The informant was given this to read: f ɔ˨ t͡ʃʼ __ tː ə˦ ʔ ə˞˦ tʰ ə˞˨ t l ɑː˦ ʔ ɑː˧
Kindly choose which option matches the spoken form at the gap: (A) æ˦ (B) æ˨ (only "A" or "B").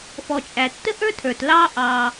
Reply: B